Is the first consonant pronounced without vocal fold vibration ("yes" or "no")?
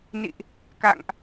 no